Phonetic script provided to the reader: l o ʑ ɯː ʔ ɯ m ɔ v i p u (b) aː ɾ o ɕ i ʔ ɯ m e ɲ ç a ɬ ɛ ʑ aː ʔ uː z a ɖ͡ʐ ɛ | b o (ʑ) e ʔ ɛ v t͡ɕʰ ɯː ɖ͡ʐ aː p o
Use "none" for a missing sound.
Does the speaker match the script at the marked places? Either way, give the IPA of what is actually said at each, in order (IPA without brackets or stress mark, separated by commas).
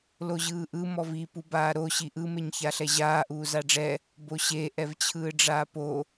b, ɕ